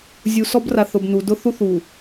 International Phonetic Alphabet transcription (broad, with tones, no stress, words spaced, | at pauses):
zʲu˨sɔ˦bra˨θ ʊ˨bnu˨ dʊ˦θu˦θ u˨